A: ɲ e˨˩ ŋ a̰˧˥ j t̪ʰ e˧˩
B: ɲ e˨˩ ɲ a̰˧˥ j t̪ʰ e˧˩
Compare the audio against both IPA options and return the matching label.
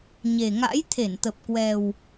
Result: A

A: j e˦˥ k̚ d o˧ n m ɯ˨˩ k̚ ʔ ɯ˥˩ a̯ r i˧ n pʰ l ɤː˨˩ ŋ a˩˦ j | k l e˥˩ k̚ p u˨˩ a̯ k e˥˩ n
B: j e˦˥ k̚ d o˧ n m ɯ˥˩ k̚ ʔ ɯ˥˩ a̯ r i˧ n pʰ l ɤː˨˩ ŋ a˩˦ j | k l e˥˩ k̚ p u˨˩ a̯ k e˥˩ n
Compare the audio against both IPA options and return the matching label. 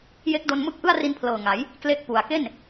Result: B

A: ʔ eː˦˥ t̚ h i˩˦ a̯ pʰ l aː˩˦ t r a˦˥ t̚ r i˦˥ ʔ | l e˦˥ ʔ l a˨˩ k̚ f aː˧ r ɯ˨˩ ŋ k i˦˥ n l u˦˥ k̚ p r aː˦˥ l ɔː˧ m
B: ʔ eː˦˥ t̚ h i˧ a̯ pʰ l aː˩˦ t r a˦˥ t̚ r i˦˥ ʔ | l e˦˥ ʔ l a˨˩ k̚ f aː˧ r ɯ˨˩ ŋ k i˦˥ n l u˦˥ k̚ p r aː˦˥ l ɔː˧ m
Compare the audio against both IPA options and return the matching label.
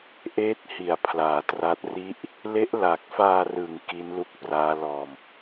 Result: A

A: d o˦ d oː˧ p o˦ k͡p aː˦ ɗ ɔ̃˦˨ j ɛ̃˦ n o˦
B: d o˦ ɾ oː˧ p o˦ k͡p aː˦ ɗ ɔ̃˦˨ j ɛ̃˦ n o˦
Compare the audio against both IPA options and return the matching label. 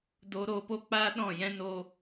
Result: B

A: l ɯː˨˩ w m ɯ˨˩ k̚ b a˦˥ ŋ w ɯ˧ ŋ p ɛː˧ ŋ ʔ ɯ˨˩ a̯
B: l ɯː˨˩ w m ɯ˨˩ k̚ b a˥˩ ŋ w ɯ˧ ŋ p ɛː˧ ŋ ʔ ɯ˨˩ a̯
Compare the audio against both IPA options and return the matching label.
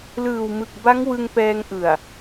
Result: A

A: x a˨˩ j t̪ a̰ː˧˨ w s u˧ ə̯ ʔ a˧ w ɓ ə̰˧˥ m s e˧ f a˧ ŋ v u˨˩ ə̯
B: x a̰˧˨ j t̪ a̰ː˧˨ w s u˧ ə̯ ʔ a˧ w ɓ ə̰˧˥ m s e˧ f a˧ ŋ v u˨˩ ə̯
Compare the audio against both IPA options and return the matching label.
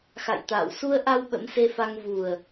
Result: B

